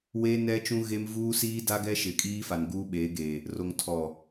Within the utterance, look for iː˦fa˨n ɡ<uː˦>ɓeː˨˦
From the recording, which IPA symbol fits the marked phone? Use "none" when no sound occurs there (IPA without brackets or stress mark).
uː˦